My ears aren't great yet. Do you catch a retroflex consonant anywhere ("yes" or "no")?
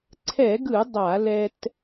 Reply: no